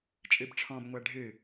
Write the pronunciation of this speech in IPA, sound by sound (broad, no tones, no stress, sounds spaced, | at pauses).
t͡ʃʼ ɨ b ʈ͡ʂʰ ɔ̃ b ŋʷ æ ɖʱ ɨ